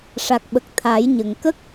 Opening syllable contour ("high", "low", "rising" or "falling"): low